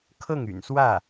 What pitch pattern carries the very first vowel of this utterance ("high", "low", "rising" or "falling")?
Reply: falling